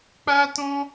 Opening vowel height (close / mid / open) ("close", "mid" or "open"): open